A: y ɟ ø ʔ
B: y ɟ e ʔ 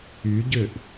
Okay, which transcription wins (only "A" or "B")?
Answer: A